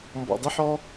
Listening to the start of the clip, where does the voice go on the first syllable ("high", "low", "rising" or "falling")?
low